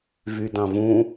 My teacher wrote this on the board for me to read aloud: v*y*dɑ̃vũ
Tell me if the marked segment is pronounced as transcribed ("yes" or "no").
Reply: yes